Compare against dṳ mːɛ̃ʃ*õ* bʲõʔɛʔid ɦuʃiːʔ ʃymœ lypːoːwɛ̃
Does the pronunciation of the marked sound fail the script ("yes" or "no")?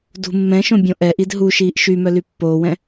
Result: no